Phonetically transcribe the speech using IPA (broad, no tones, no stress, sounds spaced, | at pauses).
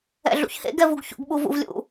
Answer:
ɛ̰ ɮ ṵ ç h ḛ ɡ ɛ v u ɡ ç ṵ ɡ ɓ u v ṵ v lʲ ṵ